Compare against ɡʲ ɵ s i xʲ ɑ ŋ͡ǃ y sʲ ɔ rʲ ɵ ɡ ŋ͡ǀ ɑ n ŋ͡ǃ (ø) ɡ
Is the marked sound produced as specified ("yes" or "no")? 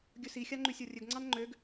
yes